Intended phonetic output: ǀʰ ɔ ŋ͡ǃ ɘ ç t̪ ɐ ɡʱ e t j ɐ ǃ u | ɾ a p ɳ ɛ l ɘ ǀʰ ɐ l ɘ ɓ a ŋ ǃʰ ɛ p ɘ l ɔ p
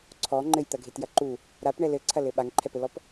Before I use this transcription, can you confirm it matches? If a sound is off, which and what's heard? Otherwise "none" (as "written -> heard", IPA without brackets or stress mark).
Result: ç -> j